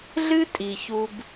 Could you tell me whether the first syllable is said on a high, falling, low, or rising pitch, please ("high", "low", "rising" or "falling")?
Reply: high